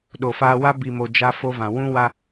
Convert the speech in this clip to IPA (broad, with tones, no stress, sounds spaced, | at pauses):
ɗ o˨ f aː˦ w a˦ b i˨ m o˨ d͡ʒ a˦ f o˦ v ã˨ w ũ˦ w a˦